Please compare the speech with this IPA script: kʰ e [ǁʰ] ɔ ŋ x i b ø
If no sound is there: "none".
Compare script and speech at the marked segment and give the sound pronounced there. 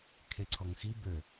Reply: ǀʰ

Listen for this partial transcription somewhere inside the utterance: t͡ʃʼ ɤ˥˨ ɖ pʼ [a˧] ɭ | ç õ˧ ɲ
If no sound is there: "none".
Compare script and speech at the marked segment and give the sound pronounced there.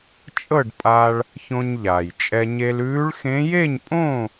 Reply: aː˧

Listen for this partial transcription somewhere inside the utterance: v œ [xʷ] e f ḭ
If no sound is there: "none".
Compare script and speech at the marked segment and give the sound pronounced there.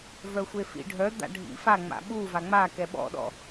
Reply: xʷ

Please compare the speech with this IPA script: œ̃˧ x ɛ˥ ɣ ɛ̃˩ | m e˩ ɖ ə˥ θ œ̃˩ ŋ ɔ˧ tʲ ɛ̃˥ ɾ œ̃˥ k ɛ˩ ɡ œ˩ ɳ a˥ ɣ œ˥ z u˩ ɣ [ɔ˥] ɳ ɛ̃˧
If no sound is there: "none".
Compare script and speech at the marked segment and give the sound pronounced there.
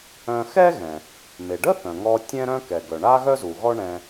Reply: ɔ˥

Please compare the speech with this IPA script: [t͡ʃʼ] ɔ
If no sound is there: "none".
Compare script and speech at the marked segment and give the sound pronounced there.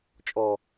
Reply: t͡ʃʼ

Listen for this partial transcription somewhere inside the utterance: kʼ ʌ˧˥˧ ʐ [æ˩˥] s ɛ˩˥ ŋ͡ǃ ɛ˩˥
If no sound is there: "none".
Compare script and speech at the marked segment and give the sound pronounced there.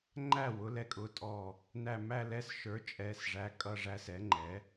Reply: æ˧˥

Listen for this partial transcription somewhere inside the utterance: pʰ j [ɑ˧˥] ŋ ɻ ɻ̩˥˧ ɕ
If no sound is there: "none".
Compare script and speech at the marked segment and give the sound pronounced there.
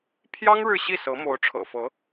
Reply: ɑ˥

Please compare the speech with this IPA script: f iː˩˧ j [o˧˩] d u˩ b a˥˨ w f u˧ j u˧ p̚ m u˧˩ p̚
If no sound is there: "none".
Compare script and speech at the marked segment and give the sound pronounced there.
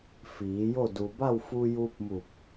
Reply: o˥˨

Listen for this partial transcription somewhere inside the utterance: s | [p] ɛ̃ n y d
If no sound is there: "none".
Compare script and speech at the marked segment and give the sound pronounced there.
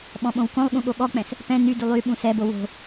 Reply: p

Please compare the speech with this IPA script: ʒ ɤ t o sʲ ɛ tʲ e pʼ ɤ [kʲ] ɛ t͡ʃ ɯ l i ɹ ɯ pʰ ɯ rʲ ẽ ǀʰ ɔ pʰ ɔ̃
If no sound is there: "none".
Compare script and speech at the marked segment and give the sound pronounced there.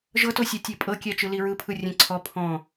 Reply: kʲ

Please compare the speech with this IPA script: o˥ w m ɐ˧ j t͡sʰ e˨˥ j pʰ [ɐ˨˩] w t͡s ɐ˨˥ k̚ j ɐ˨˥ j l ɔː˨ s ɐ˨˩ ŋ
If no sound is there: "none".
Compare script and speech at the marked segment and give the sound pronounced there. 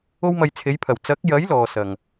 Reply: ɐ˨˩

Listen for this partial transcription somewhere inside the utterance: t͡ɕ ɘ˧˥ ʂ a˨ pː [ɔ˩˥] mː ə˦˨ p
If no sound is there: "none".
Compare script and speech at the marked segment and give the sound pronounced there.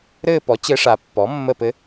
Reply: ɔ˩˥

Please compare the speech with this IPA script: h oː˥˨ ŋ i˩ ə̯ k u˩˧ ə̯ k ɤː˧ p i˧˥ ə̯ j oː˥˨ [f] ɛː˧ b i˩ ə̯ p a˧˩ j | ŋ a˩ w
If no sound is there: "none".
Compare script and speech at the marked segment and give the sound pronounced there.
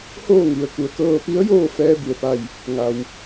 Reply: f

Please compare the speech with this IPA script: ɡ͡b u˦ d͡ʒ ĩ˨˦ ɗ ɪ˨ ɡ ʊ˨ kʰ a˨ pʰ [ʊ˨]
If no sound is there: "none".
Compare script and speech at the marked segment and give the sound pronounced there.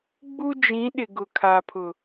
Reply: ʊ˨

